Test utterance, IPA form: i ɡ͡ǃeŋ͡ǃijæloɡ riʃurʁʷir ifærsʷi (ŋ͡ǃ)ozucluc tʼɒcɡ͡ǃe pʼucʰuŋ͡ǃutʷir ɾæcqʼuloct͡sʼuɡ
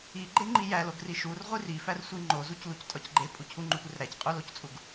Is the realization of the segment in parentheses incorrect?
no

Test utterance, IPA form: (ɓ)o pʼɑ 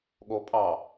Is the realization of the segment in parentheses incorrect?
yes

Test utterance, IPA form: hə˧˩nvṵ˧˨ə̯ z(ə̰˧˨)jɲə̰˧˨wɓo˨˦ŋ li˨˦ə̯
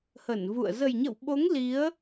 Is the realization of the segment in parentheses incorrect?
yes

